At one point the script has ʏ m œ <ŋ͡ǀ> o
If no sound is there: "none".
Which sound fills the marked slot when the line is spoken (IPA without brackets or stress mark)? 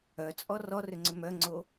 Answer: ŋ͡ǀ